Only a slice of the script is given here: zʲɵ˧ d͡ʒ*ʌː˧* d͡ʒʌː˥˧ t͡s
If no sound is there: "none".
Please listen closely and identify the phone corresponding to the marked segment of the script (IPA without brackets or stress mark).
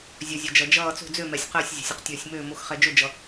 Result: ʌ˧